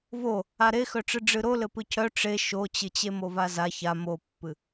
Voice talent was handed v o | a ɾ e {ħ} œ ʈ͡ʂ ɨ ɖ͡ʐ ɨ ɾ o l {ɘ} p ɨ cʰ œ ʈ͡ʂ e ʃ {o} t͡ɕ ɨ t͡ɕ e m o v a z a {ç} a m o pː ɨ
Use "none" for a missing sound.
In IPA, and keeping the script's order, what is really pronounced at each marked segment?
x, ɘ, o, ç

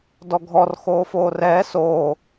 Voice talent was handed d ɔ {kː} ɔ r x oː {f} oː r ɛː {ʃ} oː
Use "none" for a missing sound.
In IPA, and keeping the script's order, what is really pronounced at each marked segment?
ɡʱ, f, s

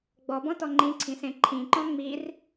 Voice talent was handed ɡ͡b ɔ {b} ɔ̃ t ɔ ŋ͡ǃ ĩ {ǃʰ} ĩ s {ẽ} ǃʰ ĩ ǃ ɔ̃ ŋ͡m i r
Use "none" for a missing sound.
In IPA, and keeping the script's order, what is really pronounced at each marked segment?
b, ǀʰ, ẽ

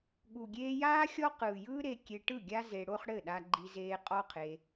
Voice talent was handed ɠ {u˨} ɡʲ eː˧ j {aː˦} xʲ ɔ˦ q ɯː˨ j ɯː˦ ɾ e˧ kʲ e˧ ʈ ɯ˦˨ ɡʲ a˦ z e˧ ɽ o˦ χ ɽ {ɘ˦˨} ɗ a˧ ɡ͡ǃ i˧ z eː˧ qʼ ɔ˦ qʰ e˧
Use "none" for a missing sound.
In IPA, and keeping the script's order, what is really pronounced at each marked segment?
u˨, aː˦, ɘ˦˨

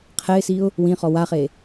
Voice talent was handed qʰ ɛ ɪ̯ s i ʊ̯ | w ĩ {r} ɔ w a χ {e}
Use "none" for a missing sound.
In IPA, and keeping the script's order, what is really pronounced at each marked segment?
χ, e

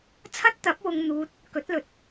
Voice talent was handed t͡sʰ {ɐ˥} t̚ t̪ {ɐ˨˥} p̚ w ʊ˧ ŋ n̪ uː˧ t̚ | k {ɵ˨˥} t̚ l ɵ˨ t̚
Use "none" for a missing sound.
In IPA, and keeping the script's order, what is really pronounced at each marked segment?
ɐ˥, ɐ˨˥, ɵ˨˥

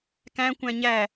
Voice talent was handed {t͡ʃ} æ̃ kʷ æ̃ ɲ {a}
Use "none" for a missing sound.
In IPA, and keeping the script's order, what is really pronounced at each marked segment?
k, æ

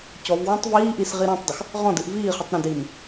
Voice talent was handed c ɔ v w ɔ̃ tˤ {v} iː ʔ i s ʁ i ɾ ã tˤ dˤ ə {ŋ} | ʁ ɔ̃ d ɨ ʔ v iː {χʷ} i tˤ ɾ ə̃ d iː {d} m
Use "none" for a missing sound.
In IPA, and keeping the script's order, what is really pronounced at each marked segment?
v, x, χ, none

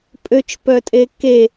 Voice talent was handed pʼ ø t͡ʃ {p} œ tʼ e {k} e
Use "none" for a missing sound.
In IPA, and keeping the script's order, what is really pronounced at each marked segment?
p, k

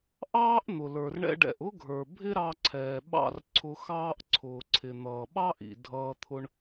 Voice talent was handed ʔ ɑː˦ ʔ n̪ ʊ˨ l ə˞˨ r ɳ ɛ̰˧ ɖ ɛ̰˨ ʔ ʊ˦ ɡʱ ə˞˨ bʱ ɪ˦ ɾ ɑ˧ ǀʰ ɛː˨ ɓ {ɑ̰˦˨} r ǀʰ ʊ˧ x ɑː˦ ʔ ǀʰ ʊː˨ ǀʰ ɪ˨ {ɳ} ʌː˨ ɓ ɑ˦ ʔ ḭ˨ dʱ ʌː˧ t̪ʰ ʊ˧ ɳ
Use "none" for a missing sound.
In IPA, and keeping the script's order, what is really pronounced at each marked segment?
ɑ̰˦˨, n̪

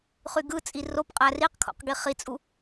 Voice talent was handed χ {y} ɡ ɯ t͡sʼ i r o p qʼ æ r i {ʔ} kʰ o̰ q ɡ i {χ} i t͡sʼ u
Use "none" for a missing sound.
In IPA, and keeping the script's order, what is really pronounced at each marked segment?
y, q, χ

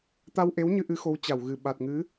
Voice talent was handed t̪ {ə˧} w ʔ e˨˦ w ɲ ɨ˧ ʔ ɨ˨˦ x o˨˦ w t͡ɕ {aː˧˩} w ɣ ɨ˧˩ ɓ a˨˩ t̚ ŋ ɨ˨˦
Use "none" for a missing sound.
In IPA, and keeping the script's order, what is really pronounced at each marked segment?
a˧, a˧˩

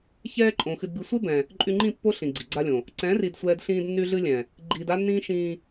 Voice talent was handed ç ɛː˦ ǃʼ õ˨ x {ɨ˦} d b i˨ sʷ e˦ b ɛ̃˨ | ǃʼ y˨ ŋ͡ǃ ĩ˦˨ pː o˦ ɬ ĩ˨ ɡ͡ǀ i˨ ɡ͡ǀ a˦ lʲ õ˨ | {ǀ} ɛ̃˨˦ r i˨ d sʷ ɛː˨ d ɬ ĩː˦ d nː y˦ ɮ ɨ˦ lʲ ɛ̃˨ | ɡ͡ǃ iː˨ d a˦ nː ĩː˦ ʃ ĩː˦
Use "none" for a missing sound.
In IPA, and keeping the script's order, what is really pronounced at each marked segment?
ɨ˨, ǀ

